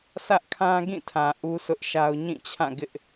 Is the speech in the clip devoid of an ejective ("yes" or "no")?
yes